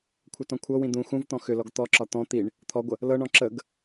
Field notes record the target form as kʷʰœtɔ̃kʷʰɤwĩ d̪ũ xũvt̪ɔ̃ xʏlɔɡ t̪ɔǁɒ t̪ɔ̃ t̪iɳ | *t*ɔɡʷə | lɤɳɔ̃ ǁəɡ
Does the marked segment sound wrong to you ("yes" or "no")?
yes